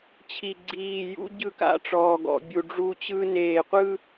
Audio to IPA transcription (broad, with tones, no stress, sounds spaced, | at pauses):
t͡ɕʰ i˨ ɡ͡ǀ iː˨ j ṵ˦ ɟ ɯ˦˨ k a̰˦˨ ʈ͡ʂ ɔː˨ ɡ ɔ̰˨ bʲ u˨ ɖ͡ʐ u˦ t͡ɕ ɯ˦ n eː˨ qʷ ɯ˦